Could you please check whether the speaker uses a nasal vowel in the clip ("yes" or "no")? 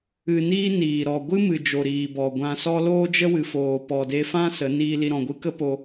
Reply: yes